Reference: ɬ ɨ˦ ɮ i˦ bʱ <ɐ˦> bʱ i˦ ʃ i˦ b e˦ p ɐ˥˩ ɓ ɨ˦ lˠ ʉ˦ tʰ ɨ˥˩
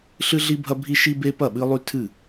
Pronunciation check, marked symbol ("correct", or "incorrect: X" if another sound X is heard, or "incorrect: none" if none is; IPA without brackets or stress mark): correct